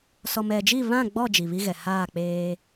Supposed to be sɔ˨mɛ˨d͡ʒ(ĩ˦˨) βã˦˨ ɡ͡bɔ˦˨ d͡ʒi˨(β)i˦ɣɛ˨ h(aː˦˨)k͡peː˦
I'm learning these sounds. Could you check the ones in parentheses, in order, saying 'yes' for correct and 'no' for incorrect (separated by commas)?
no, yes, yes